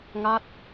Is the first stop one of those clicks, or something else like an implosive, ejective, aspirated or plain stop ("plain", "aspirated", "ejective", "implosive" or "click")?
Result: plain